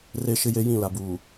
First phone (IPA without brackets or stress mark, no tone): r